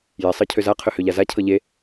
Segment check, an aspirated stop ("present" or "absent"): present